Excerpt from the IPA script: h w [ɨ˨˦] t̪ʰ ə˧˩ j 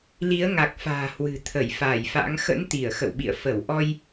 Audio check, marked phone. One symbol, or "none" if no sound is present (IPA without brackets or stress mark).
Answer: ɨ̤˨˩